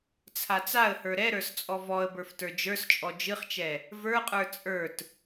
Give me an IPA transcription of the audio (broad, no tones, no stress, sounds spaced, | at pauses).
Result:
t͡sʰ a t͡s a ə̯ h ə˞ ɾ ɛ ɾ ə˞ s t͡sʼ ɔ v ɔ ə̯ b ə˞ f t ə˞ d͡ʒ ə˞ s t͡ʃʼ ɔ d͡ʒ ɨ χ t͡ʃ ɛ | v ə˞ qʼ ə˞ t͡sʼ ə˞ t